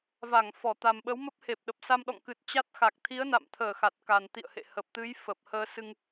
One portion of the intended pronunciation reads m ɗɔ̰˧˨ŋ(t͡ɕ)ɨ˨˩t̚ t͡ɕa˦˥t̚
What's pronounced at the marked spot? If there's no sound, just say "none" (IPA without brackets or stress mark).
k